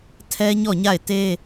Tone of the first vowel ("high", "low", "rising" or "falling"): high